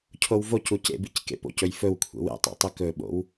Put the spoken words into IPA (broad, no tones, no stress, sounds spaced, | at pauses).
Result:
cʰ o w v o c u c ḛ b i c k ḛ p o̰ c ɵ j f ɵ w kʷʰ ḛ w ḛ tˤ o̰ tˤ ɵ k ɵ ɓ o̰ w